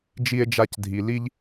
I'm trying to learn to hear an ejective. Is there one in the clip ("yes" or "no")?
no